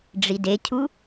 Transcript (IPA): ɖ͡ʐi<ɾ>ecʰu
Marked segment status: incorrect: d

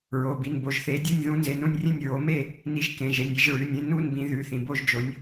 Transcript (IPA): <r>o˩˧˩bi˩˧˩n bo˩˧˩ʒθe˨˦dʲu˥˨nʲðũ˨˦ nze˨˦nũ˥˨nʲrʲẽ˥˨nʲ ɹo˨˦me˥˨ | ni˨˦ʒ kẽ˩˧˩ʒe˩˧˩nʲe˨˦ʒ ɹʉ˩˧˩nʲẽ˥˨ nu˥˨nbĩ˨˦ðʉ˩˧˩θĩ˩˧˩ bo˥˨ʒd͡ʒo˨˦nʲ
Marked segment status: incorrect: ɹ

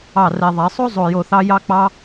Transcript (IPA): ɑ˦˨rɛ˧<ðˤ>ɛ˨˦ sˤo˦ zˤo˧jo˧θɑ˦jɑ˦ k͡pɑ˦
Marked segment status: correct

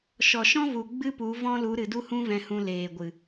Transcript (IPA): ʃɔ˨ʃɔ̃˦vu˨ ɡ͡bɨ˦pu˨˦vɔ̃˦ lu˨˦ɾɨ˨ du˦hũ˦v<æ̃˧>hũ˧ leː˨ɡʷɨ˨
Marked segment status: incorrect: ɛ̃˧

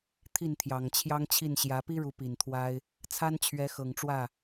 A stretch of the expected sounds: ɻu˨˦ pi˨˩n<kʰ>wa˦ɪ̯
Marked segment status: incorrect: t̪ʰ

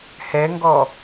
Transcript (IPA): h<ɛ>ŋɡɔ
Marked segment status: correct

